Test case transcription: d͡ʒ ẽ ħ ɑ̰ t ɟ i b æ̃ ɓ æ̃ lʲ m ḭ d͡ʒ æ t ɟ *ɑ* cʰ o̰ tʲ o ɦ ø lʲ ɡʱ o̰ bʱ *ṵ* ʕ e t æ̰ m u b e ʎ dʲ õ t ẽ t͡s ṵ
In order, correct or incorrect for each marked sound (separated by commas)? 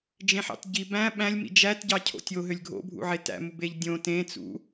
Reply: correct, correct